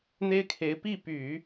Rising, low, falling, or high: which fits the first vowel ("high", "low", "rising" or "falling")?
high